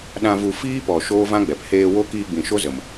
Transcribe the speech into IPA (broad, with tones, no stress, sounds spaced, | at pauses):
ɗ ã˧ v u˧ f iː˦ p ɔ˨ ʃ oː˦ v ã˦ ɡ͡b ɛ˨ p h eː˧ w o˦ k iː˧ ɡ͡b ĩ˨ ʃ o˦ z ə˨ m